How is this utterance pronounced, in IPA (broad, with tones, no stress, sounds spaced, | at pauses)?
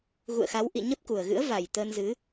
ɣ ṵ˧˨ ə̯ x a˨˦ w ʔ ḭ˧˨ ɲ ə˦˥ p̚ k u˨˩ ə̯ ɣ ɨ̰˧˥ ə̯ v a˨˩ j t̪ əː˧ n z ɨ˨˦